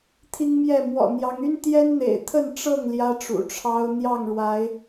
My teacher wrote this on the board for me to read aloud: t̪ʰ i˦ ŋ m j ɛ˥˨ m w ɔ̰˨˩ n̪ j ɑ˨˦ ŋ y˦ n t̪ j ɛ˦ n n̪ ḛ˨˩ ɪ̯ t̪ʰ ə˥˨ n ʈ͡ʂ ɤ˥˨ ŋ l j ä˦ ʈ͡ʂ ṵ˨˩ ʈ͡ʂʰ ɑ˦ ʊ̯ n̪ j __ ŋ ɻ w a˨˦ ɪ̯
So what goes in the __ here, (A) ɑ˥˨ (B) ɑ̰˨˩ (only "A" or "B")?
A